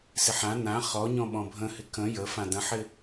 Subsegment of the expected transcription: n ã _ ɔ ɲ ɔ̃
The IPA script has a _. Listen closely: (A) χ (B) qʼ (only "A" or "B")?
A